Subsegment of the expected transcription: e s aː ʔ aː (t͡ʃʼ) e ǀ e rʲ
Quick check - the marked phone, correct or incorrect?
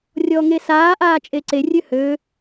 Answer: correct